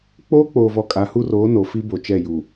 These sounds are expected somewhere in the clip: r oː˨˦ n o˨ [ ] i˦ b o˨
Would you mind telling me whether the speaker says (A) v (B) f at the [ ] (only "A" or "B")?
B